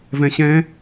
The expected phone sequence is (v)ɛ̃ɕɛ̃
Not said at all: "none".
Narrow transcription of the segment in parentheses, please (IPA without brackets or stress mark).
v